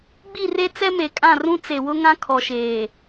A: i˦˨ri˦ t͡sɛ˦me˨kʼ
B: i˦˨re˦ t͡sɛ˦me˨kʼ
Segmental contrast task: B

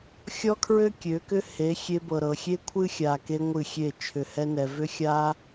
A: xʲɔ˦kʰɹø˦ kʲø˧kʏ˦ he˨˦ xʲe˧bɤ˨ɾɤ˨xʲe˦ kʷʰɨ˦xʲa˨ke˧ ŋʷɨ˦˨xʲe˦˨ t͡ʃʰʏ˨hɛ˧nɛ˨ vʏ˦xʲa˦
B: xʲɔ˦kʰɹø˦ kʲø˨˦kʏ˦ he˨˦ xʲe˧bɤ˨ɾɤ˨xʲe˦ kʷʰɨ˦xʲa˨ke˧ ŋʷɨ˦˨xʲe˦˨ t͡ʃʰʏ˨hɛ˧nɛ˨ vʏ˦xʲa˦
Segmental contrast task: B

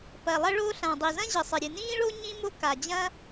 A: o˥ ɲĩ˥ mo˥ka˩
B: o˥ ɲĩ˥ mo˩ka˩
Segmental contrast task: A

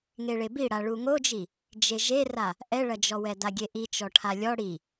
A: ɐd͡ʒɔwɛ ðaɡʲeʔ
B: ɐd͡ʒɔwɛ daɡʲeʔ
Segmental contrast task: B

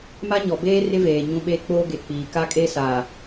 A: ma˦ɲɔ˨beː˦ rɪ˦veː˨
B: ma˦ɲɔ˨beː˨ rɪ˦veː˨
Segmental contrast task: A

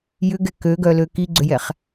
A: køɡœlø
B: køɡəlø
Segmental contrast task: A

